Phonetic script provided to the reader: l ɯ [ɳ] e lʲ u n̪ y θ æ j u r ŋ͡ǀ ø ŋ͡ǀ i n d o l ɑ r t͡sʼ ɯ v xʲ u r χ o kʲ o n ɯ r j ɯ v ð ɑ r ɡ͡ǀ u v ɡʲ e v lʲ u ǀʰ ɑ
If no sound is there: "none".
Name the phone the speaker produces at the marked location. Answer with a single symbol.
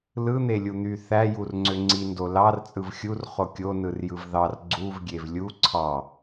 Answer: n̪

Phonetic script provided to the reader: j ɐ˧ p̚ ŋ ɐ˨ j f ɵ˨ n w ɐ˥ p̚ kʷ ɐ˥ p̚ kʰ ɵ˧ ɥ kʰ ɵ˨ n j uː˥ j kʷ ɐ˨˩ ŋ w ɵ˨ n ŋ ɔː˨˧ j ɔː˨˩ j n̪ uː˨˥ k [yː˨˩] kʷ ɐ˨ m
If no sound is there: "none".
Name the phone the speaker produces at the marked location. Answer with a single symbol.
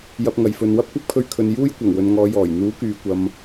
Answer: yː˨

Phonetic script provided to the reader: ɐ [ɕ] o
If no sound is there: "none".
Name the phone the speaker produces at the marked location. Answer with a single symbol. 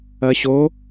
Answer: ɕ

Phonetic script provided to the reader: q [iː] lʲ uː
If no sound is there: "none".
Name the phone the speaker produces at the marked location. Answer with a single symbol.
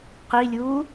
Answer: i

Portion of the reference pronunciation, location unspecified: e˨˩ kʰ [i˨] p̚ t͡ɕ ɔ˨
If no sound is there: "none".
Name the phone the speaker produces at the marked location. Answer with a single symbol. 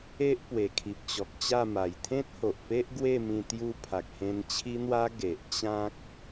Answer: i˨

